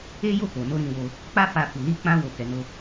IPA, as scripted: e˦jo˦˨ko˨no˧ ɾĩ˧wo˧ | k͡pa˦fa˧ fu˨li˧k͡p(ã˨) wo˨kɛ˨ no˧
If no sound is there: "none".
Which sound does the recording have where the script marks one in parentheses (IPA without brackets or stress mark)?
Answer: ã˧